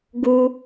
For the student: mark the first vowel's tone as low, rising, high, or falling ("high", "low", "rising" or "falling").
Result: high